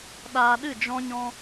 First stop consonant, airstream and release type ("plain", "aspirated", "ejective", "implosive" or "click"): implosive